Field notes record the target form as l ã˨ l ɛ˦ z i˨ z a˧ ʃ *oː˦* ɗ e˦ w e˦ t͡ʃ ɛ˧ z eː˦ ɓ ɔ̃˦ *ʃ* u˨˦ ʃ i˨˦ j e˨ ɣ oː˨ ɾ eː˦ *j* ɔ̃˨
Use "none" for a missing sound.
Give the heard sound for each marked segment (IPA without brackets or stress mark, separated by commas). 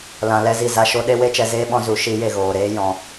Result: o˦, z, j